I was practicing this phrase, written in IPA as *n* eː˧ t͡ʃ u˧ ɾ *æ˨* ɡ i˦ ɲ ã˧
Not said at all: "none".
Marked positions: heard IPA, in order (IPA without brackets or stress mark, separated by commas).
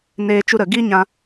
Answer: n, ə˨